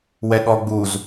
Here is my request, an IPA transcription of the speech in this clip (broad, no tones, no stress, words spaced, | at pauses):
wɛɠɔɡ͡buz